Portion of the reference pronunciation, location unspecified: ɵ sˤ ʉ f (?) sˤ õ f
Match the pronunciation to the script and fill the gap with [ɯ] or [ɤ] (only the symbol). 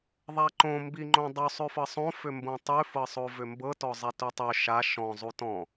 ɤ